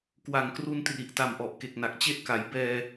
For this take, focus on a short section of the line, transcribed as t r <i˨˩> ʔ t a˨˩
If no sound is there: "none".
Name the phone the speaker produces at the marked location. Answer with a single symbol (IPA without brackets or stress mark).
i˨˩